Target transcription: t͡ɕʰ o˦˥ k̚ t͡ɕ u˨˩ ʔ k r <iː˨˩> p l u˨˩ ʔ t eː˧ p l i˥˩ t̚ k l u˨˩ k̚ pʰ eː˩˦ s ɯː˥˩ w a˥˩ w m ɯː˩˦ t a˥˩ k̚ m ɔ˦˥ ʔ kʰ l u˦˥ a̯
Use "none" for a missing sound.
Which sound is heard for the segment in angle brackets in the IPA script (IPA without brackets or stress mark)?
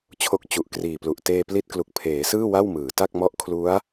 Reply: iː˨˩